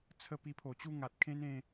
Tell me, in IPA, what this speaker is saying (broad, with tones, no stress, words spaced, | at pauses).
t͡sʰə˦ pi˧pʰo˨˩t͡ɕu˥˧ ŋa˨t̚kʰẽ˦nẽ˧